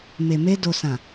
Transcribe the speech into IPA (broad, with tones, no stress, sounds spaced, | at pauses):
m e˨ m e˧ d o˨ s ã˨